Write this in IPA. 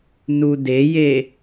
n u d e j e

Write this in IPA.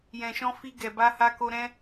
j ɛ̃˨ ʃ ɔ̃˧ f i˧ ɡ ɛ˨ b a˧ h a˧ k o˧ ɾ ɛ̃˧

